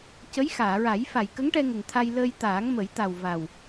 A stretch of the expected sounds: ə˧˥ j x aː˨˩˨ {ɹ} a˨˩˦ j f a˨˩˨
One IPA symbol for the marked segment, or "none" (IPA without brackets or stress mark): ɹ